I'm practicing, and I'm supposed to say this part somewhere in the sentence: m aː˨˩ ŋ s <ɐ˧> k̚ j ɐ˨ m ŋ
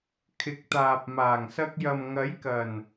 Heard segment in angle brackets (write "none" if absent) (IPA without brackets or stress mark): ɐ˧